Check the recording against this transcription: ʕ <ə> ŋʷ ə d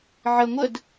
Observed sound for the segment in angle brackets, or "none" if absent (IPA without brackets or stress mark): ə